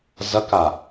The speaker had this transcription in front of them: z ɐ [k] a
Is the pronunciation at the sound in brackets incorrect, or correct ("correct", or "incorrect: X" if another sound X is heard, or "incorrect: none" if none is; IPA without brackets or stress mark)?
correct